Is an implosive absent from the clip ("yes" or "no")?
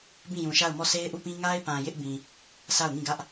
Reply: yes